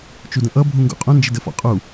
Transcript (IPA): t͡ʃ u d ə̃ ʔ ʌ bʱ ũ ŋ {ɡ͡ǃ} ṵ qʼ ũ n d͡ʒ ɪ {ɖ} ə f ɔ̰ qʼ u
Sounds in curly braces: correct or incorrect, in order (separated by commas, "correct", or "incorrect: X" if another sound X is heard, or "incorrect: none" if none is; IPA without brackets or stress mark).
incorrect: ɡ, incorrect: d